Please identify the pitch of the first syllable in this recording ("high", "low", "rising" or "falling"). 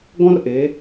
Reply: high